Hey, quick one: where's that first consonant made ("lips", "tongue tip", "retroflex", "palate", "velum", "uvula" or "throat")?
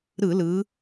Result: tongue tip